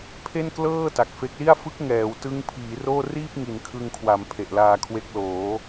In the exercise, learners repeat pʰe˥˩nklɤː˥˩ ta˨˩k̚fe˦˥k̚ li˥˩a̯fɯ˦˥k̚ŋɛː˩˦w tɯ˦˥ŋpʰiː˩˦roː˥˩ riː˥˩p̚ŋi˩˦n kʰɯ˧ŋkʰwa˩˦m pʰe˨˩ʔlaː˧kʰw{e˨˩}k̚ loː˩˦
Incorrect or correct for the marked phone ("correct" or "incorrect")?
incorrect